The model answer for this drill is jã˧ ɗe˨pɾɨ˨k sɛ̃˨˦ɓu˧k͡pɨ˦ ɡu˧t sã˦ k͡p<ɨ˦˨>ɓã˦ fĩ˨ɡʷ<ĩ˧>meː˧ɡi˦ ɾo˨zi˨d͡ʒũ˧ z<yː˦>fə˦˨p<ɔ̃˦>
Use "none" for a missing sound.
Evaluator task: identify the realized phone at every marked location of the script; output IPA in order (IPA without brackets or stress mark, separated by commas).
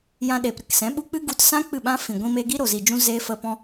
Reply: ɨ˦˨, ĩ˧, eː˦, ɔ̃˦